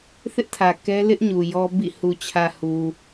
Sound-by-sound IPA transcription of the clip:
θɪ˦ʔtʰä˨ kɛ˦ lɪ˦ʔɲu˨ jɔ˦ bḭ˦˨ hu˨t͡ɕʰä˨ hu˨

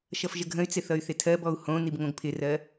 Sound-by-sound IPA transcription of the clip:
ʃʌfʒəɡʱə̃y̯t͡sɪ θʌy̯θɪtʰɜbɔu̯ hõnib ŋõɡpʰɪrɜ

